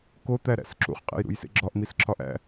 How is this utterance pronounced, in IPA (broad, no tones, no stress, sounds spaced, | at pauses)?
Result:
k o t̪ æ ɾ æ̰ s ǁ ṵ χ qʼ ḛ j ɾ ṵ j s ḛ ɡ͡ǁ ɒ ʔ m i s ǁʰ ɒ ʔ æ̰